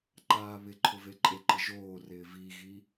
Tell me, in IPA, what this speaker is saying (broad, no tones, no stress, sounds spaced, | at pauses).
ǃ aː β ɪ ǃʰ ʊ v e ǃʼ e ǃ ɪ ʒ oː r ɪː v i ɣ i